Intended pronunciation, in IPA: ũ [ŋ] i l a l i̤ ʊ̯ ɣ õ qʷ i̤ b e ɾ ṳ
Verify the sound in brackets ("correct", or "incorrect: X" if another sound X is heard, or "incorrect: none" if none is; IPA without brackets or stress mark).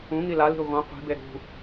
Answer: correct